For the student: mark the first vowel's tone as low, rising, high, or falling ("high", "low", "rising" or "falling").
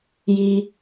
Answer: high